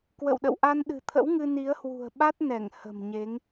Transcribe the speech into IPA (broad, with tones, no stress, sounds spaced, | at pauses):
k w ə̰˧˨ w ɗ ə̰˧˨ w ʔ a˧ n ɗ ɨ̤˨˩ t̪ʰ ə̰˧˥ w ŋ ɨ˧ n i˨˦ ə̯ h w ṳ˨˩ ə̯ ɓ a˦˥ t̚ n ɛ˧˩ ŋ h ə̤˨˩ m ɲ e˨˦ ŋ